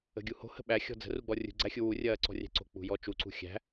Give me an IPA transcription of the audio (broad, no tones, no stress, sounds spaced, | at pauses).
ə̤ ɡʲ u h o̤ h ə̤ ɓ æ xʲ ɔ̤ d͡z ə̤ r u ɡ͡b ɔ rʲ ṳ ɡ͡ǀ æ xʲ u w u rʲ ɐː ǀ ɔ̤ rʲ æ̤ ǀ o̤ k͡p ṳ j ɔ t͡ʃ u ǀ ṳ xʲ æ̤